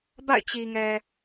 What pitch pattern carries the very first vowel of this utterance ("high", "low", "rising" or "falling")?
falling